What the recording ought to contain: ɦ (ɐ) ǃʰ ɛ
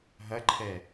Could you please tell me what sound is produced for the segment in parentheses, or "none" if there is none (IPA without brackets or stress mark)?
ɐ